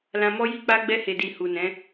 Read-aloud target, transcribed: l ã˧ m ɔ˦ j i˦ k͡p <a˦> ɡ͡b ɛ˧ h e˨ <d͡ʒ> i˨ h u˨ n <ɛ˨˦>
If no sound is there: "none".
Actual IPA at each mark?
a˦, d, ɛ̃˨˦

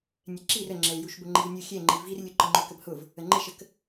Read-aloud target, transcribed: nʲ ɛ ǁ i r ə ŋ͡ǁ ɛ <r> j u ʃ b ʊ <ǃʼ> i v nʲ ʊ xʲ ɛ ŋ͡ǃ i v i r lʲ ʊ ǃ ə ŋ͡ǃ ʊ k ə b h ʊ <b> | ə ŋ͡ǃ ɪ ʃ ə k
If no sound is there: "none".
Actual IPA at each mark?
l, ŋ͡ǃ, v

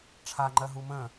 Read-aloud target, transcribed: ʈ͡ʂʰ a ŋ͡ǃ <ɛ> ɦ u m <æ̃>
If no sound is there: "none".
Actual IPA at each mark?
ɜ, ə̃

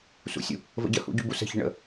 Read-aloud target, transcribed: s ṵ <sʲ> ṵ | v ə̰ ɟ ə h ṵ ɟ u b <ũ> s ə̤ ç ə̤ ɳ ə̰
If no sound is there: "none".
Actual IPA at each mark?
sʲ, u

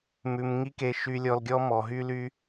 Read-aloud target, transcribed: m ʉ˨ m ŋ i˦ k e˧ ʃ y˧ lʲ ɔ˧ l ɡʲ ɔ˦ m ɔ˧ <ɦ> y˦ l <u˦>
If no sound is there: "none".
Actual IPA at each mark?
ɦ, y˦

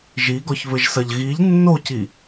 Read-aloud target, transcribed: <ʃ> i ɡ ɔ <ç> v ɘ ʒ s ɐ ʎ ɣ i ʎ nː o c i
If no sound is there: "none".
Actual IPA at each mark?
ʒ, ç

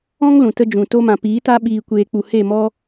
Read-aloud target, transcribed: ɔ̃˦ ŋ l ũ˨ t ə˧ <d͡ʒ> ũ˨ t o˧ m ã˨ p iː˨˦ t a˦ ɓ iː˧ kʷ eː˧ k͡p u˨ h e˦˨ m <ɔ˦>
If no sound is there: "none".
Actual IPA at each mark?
d͡ʒ, ɔ˦

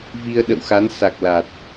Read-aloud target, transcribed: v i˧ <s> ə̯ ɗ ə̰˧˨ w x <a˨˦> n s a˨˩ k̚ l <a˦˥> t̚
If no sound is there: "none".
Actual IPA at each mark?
none, a˨˦, a˨˩

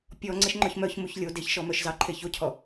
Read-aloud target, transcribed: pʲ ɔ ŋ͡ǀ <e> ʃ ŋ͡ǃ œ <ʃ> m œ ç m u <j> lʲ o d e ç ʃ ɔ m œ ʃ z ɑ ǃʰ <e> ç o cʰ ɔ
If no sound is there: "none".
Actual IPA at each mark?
e, ç, ç, e

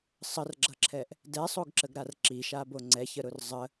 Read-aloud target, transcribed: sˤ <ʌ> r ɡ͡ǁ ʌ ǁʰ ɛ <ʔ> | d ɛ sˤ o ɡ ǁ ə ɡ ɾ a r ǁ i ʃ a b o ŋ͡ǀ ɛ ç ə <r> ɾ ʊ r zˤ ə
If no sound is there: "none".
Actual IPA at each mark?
ə, ʔ, none

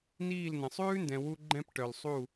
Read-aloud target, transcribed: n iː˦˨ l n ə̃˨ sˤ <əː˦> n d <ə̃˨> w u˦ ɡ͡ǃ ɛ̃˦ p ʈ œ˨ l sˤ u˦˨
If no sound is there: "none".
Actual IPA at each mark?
ʉː˦, ɛ̃˨

